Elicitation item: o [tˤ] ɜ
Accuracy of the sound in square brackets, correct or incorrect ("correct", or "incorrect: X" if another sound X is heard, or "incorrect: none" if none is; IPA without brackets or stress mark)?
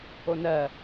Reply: incorrect: n